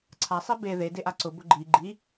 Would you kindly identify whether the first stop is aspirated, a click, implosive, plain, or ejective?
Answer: click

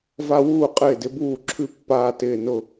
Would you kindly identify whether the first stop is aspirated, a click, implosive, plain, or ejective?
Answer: ejective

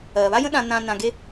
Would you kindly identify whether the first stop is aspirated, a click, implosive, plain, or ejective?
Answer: implosive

